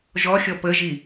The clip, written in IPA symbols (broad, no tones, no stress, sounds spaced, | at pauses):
ʒ ɔ xʲ ɔ p ə ʒ i